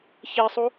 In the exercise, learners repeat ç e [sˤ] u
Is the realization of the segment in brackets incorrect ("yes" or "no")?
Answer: no